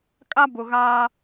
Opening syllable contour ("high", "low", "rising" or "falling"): high